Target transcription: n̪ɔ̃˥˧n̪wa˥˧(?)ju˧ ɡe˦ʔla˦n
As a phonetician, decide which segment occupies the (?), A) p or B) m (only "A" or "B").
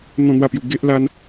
A